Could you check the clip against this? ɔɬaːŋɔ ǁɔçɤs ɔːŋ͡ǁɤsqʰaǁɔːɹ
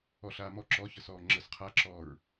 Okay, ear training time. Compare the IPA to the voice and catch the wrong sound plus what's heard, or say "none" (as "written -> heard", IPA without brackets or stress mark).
ŋ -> m